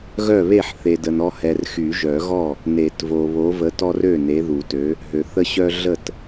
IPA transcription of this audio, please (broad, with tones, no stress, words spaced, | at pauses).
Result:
ɣœ˥˩βe˥˩ħ θe˨də˨nɔ˦hɛ˨r xy˨˩˦ʒœ˨˩˦ɣɔ˥˩ | ne˨˩˦t vo˨βo˨˥və˨˥ tɔ˦rø˥˩ ne˨˥ðu˨˩˦tø˨˥ | ɦø˨ θə˦ɕœ˦ ɮə˥˩t